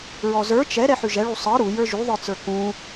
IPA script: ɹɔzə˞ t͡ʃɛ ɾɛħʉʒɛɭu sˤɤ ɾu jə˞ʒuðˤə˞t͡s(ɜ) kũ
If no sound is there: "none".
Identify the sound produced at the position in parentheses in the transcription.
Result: ə˞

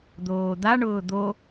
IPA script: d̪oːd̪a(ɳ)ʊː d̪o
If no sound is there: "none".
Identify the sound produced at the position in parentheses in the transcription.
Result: ɳ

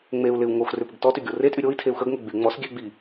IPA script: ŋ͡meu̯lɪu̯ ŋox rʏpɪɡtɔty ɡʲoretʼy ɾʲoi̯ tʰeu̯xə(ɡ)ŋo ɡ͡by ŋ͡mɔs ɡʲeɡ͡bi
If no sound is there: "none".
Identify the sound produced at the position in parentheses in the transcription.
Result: ɡ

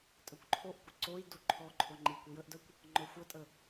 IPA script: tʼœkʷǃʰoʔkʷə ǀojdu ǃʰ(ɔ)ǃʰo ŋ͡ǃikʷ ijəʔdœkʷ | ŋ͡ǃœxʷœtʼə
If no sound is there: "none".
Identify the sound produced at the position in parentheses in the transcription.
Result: ɔ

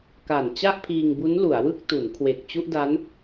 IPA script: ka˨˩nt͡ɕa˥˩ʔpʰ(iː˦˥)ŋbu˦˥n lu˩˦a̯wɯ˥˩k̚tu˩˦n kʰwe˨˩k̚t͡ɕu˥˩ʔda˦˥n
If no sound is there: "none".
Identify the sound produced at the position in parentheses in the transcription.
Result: iː˧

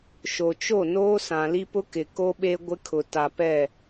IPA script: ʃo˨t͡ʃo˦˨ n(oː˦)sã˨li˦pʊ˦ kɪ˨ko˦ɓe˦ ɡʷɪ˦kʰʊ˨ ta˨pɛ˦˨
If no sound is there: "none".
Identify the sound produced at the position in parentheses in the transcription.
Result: oː˦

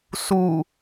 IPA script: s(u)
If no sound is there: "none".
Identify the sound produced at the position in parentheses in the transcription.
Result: u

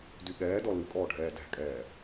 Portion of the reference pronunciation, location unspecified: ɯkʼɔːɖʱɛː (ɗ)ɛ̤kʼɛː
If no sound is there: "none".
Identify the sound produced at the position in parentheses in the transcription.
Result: d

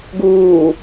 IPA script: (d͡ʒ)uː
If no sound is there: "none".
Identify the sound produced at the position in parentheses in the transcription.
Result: ɡ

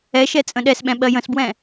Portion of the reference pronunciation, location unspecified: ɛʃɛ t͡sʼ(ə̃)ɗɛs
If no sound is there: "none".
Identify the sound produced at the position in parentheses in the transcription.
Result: ə̃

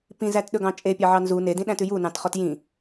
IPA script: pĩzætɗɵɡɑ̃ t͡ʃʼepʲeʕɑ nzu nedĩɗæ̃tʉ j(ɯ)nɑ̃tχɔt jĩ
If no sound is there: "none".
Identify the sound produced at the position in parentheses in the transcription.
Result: u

